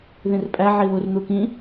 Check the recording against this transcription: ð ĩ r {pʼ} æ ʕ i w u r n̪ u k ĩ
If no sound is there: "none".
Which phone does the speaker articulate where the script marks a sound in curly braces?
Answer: pʼ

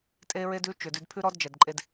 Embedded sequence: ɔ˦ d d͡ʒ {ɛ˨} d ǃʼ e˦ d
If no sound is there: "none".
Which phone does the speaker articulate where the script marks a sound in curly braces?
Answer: ɛ˨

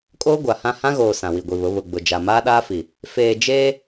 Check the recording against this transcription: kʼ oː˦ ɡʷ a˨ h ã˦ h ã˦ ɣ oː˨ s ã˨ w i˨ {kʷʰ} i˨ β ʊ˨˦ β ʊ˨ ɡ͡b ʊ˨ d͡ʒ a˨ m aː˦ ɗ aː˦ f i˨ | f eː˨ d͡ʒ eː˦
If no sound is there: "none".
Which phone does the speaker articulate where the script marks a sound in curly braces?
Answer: ɡʷ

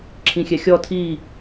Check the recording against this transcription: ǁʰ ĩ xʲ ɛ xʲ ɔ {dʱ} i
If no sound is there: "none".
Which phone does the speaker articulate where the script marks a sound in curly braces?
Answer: tʰ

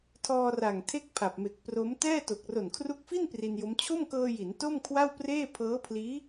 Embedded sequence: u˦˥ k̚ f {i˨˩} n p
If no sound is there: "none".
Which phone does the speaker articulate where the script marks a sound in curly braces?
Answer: i˥˩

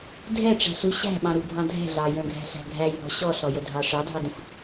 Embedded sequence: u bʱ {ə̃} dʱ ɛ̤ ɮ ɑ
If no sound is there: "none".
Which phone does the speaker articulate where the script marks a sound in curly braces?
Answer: ɑ̃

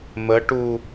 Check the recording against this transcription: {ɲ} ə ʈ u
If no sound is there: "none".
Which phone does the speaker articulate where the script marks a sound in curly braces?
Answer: m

